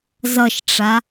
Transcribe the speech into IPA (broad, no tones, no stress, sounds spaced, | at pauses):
z ʌ ʃ ʈ͡ʂ a